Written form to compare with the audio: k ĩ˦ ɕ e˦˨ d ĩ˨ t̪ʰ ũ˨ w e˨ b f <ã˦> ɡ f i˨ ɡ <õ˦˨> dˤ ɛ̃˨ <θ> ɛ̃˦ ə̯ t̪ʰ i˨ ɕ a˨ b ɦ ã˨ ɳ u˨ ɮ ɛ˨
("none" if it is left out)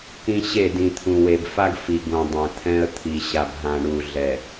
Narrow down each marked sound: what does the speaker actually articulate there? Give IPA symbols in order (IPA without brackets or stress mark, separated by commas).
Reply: a˦, õ˨, t̪ʰ